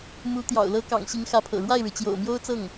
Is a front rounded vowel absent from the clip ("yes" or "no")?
yes